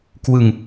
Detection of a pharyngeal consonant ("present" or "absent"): absent